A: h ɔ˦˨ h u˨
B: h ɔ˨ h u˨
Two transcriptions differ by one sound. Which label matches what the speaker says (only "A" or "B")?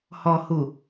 B